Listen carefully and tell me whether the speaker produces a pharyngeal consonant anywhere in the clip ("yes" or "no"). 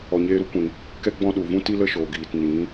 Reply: no